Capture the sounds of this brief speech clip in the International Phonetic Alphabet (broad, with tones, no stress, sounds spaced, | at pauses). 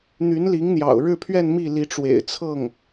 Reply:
n̪ y˧˥ n l i˧˥ ŋ n̪ j ɑ̰˨˩ ʊ̯ ɻ ɻ̩˥˧ pʰ ɥ ɛ˥˧ n m i˥˩ l i˧˥ ʈ͡ʂ w ḛ˨˩ ɪ̯ t͡sʰ ɤ˥˩ ŋ